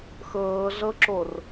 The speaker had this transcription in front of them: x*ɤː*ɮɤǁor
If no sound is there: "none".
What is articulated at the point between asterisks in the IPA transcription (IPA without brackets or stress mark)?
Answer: ɤː